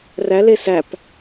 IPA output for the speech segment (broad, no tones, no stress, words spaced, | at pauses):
ræ lesæp